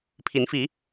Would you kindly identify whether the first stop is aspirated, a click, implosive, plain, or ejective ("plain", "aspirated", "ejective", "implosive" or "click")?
aspirated